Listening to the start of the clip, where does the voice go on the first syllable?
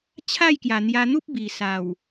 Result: falling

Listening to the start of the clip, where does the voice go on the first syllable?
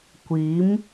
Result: rising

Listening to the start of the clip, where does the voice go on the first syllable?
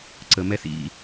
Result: low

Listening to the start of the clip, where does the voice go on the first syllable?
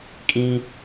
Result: high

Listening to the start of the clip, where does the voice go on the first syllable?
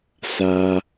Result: high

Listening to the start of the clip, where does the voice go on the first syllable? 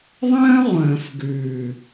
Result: high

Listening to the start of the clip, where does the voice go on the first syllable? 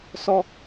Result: high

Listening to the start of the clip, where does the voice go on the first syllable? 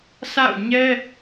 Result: falling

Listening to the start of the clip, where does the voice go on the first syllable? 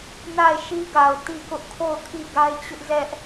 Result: falling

